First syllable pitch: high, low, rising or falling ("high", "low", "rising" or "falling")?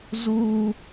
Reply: high